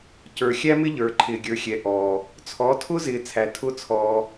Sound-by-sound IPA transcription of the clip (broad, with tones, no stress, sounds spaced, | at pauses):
c ə˞˨ xʲ æ˦ m ɪ˦ ʎ ə˞˨ ǃʰ ɪː˨ ɡʲ ə˞˨ xʲ ɛ˨ ʔ ɔː˨ | t͡sʰ ɔ˨˦ tʰ ʊ˦ z ɪː˨ t͡sʰ æ˨ tʰ ʊː˦ t͡sʰ ɔː˧